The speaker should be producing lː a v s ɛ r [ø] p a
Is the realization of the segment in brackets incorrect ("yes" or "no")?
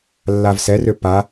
no